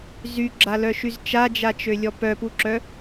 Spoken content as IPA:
z y ɡ͡ǁ a l œ ʃ y z t͡ʃ a d͡ʒ a t͡ʃ ø lʲ ɔ p œ p u ǁ œ

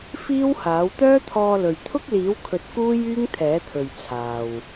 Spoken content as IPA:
f iː˥ w h aː˨˥ w t̪ œː˥ t̪ʰ ɔː˧ l ɵ˨ ɥ t̪ʰ ʊ˥ k̚ l iː˨˥ w kʰ ɵ˨˥ t̚ k uː˥ j yː˥ ŋ t̪ʰ ɛː˨˥ t̪ʰ ɵ˨ ɥ t͡sʰ aː˨ w

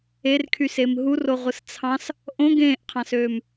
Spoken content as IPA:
e r kʰ y s e m ɦ u r o ʁʷ ɯ s t͡sʰ ɑ̃ s | ʔ õ ɡ ẽː ʔ qʰ ɑ̃ s øː m

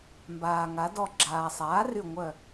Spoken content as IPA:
m b aː˩ ŋ a˩˧ d ɔ˧˩ ɡ͡ǁ aː˩ sˤ aː˩˥ r y˧˩ ŋʷ œ˧˩

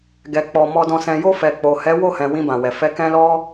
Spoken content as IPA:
ɡ ɛ˨ k͡p ɔ˨ m ɔ˨ d ɔ̃˨ s ɛ̃˨ j o˧ f ɛ˨ k͡p o˨ h ɛ˨˦ w o˦˨ h ɛ̃˨ w ĩ˧ b ã˨ w ɛ˨ f ɛ˧ k ɛ̃˦ l ɔ˦

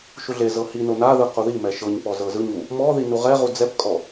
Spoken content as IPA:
ʃ u ɮ e z ɤ h i n o n a ð ɯ q u ð i m ɛ ʃ ɤ ɲ p ɔ z ɤ z ɯ ɲ u | m ɔ ð i n u ʁ ɛ ʁ u d͡z ɛ p kʼ ɔ

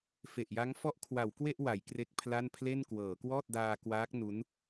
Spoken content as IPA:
f e˨˩ ʔ j a˦˥ ŋ f ɔ˦˥ ʔ kʰ w a˩˦ w k w e˥˩ ʔ w a˩˦ j k r e˥˩ k̚ pʰ l a˥˩ n pʰ l e˥˩ n k w ɤː˩˦ k w ɔː˥˩ t̚ d aː˧ k w aː˦˥ k̚ n u˦˥ n

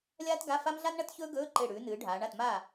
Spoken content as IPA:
lʲ aː˥ t ɡ a˧˥˧ f a˥ m ɮ a˥ n ɳ ɐ˥ t ç ɵː˥ ɡ ɵː˧˥˧ ǃ e˧˩ ɽ ʉː˩˧ n ɨː˩˧ ɖʱ aː˩˧ ɳ a˥˩ t m aː˥˩

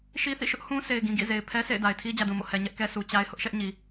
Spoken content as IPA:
ʃ i˦ θ ḭ˦˨ ʃ ʊ˦ ʔ h ũ˦ s e˨ ɪ̯ ɡ ĩ˨ ɡ ḭ˦˨ z e˨ ɪ̯ pʰ ɛ˦ s ḛ˦˨ ɪ̯ d a˨ ɪ̯ tʰ i˦ d͡ʑ ä˨ d ũ˨ m o̰˦˨ h ɛ˨ ɲ ɛ˦ ʔ k ɛ˦ sʰ u˨ t͡ɕ a˦ ɪ̯ h ʊ˦ ʔ ʃ ɛ˦ ʔ ɲ i˨

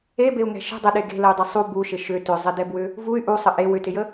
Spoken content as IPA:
e b e u̯ ŋ ɛ̤ ʃ ə̤ dˤ ə ɗ e ɡ e̤ l ə y̯ dˤ ɪ sˤ u b u ʃ ɪ ʃ ʏ t ʏ zˤ ɪ d ɛ b w ʏ | v u y̯ ʔ u sˤ ə ʔ e w ʏ t ɪ j ə

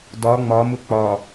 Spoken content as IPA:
d ɒ ŋ͡m ɒ m ʊ k͡p ɒ

